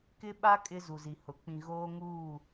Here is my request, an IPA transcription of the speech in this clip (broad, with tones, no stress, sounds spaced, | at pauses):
k ɪ˦ ɓ a˦ kʼ ɪ˦ z u˨ z i˨ h ʊ˨ k͡p ĩ˨ ɣ oː˦ ŋ uː˦˨